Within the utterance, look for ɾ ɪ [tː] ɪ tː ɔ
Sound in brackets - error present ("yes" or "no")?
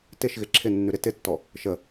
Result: yes